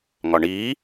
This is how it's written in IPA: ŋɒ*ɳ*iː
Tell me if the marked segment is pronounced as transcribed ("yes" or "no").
yes